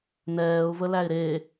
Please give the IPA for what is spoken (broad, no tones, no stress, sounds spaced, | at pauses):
n ɛː ʊ̯ v ə l æ ɪ̯ ɾ e